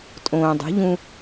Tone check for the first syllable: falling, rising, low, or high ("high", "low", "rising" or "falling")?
low